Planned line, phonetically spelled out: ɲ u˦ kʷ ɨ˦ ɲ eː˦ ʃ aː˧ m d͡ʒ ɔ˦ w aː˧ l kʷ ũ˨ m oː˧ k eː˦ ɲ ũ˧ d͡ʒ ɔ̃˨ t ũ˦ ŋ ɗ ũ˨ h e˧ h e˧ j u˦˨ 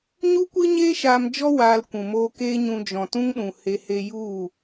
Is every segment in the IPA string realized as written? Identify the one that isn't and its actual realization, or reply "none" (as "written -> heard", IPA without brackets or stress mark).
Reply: none